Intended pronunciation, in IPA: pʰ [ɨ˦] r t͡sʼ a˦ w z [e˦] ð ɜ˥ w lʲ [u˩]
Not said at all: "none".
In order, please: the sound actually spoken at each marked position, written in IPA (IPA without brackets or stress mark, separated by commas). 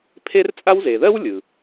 e˦, e˩, ɯ˩